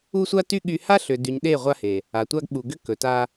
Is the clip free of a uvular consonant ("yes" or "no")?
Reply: no